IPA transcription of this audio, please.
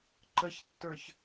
ǃ ə ç tː ə˞ ç

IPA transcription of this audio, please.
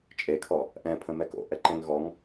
t͡ʃʼ e kʰ ɔ | ʔ ɛ̃ pʰ ə̃ m ɛ k o̰ ʔ ɛ ǃ ɛ̃ ŋ ɣ ɔ ŋ

